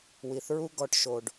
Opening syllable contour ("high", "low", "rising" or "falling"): low